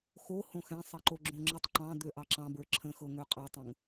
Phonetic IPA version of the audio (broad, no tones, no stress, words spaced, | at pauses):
xo hõxɛ̃ sˤɛǃoɡ͡ǁõŋ͡ǁətˤ ǃɑ̃d̪ø ʔɑǁɑ̃bə˞ ǁʰə̃xɤ ŋøqʼɑtˤõŋ